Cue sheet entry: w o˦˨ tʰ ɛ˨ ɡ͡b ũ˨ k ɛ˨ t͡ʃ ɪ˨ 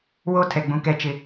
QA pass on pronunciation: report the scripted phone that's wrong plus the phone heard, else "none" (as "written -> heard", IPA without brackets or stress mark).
none